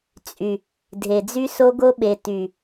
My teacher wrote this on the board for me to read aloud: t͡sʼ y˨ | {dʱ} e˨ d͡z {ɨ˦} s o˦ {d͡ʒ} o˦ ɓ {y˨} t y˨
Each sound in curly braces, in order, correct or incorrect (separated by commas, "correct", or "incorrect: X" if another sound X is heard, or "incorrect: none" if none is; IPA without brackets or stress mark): correct, incorrect: y˦, incorrect: ɡ, incorrect: e˨